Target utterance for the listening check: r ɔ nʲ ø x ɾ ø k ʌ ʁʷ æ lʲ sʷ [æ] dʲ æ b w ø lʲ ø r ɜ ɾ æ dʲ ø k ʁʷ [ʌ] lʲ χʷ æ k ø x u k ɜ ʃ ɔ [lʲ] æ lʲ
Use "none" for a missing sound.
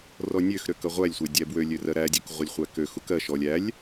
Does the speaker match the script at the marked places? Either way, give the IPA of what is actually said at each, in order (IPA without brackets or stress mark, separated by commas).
æ, ʌ, lʲ